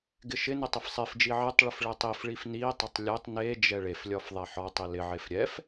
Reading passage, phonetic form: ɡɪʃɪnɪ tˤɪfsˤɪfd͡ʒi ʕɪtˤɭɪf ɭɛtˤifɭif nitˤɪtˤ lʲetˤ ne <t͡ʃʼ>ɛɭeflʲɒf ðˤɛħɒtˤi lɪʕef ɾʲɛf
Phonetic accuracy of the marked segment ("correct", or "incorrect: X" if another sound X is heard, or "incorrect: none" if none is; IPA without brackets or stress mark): incorrect: d͡ʒ